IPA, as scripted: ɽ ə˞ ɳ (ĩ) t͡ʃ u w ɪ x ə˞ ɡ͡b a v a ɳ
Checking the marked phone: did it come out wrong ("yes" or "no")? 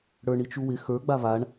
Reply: yes